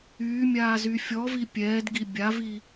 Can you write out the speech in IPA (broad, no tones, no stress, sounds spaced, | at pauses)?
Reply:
yː mʲ aː z y fʲ ɔ v i pʲ ɛː d ɡ i bʲ a v i